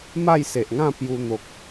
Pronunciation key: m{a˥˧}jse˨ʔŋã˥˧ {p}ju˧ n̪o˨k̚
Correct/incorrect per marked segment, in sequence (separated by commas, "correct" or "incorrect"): correct, correct